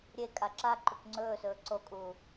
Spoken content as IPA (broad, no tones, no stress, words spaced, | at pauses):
ɾʲe kʼaǁaǃuk ŋ͡ǀɵːsɵː ǀokʼuː